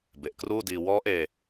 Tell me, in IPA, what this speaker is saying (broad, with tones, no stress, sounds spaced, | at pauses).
b e˨˩ ʔ k r uː˥˩ d iː˧ w ɔː˦˥ ʔ eː˧